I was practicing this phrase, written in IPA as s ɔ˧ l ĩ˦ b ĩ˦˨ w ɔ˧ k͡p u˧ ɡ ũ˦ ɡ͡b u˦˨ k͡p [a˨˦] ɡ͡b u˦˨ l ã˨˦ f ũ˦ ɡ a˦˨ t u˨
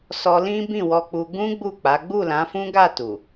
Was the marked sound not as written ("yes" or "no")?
no